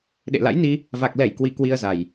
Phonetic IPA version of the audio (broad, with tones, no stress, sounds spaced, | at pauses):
ɗ ḛ˧˨ l a̰˧˥ j n i˧ | v a˨˩ k̚ l ɛ˧˩ j k w i˨˩ k w i˧ ə̯ z a˨˩ j